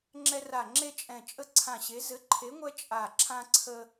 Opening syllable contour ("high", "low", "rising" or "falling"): high